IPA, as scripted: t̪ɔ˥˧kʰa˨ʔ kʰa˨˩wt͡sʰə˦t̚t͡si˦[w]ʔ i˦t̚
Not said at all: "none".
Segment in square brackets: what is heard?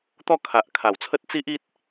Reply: none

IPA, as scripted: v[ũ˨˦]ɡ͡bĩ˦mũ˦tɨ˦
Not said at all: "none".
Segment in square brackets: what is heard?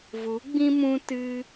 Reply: u˨˦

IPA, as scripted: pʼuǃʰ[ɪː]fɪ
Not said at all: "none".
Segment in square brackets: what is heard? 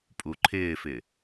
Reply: ɪː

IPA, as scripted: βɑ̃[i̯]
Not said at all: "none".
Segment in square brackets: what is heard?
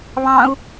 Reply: u̯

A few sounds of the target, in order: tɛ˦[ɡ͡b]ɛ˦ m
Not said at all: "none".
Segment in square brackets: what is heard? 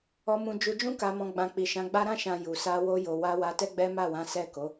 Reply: ɡ͡b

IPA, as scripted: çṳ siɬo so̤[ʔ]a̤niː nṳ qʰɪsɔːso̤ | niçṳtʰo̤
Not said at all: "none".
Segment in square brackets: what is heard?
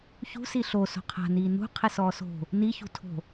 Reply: qʰ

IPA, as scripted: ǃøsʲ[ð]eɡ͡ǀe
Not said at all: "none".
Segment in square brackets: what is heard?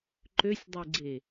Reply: dˤ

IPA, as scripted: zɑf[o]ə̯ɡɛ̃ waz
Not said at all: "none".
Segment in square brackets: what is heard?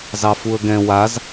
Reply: u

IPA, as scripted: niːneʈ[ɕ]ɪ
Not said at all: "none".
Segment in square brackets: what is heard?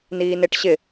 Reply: ɕ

